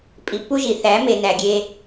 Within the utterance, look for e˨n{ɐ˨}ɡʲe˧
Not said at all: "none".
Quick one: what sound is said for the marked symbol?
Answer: æ˨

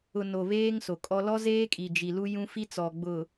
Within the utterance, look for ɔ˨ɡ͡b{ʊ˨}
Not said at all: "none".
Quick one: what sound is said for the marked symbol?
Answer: ʊ˨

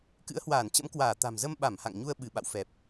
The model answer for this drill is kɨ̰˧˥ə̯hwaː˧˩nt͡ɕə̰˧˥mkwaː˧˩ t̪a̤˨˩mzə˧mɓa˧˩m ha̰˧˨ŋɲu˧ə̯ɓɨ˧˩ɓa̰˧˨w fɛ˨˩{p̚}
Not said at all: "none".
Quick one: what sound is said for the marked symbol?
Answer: p̚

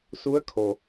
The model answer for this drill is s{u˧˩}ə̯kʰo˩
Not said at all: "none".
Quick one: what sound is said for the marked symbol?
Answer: u˧˥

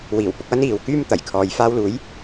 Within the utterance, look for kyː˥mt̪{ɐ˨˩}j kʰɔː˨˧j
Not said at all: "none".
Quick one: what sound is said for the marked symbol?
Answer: ɐ˨˩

